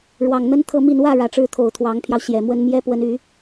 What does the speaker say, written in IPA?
ɻwɑ˨˩ŋn̪ə˥nt̪ʰɤ˥˧mi˥˧n wä˥˩ ɻä˨˩ʈ͡ʂɻ̩˥ t̪ʰo˨˩ʊ̯t̪ʰwɑ˧˥ŋpʰjɑ˧ʊ̯ ɕjɛ˨˩mwə˥n mjɛ˥pwə˧˥ny˨˩˦

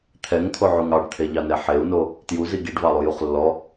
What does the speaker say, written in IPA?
t̪ʰɛŋt̪ʰoʕuŋ ɑɖt̪ʰeʎɑnɛ ħeu̯no | tjuzi ɡiɖvɑlˠujuχ lːɔ

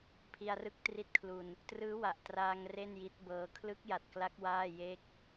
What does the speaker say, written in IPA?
pʰi˧a̯rɯ˦˥k̚ tri˦˥t̚kʰlu˧n | trɯː˦˥wa˨˩ʔ traː˧ŋ re˥˩nji˦˥t̚bɤː˧ kʰlɯ˦˥k̚ja˨˩t̚kla˦˥k̚ waː˥˩je˥˩k̚

